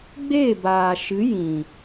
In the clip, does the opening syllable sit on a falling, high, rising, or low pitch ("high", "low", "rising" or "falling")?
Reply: falling